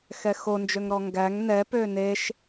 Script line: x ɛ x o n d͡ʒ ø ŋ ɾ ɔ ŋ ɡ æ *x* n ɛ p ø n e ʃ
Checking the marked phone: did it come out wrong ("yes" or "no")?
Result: yes